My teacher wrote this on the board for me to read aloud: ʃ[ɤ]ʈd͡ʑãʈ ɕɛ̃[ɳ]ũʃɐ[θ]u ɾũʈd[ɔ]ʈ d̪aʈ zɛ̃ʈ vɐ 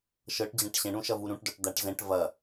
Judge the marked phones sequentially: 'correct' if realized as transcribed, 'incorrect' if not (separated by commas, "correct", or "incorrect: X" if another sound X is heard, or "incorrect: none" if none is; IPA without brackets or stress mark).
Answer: correct, correct, incorrect: v, correct